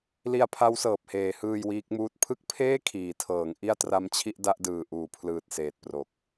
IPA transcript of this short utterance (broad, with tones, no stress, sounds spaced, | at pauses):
l i˧ a̯ pʰ a˦˥ w s ɤː˨˩ p̚ h eː˨˩ h ɯː˧ j w iː˦˥ k̚ m uː˥˩ t̚ pʰ ɯ˥˩ k̚ pʰ eː˥˩ kʰ iː˩˦ tʰ ɤː˩˦ ŋ ʔ i˥˩ a̯ t r a˦˥ m t͡ɕʰ i˥˩ ʔ d a˥˩ ʔ d ɯː˨˩ ʔ uː˨˩ pʰ l ɯː˨˩ t̚ s eː˨˩ t̚ p r o˨˩ k̚